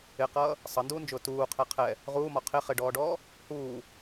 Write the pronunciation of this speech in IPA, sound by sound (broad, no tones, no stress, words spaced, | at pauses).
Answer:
ɪqʌː | sˤʌnduːnd͡ʒʊː tuːqʰɛ qʰɛ | ʁuːmɒ qʰɪ χɪɖɔːɖɔː | huː